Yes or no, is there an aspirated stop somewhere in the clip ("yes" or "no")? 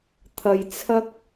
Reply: yes